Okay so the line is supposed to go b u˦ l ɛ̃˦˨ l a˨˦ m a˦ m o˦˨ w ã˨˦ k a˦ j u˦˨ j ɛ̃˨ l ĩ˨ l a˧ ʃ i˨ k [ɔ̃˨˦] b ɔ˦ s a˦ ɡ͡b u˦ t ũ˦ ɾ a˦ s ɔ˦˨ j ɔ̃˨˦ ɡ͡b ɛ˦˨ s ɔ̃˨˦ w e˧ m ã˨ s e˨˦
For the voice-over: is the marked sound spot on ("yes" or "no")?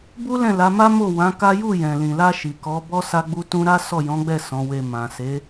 no